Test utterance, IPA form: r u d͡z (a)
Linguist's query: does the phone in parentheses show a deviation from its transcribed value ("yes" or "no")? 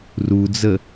yes